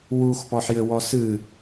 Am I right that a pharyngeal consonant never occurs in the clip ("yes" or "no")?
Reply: no